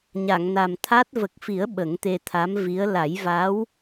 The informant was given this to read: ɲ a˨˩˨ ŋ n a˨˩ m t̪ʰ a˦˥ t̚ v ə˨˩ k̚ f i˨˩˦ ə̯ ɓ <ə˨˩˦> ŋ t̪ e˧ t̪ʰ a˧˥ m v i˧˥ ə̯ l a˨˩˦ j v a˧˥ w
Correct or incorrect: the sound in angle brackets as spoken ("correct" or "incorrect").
correct